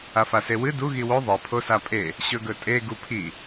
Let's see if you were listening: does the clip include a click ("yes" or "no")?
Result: no